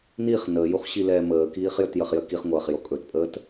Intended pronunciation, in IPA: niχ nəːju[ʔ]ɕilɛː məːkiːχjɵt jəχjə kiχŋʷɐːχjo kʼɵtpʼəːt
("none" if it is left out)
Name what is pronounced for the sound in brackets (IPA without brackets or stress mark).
χ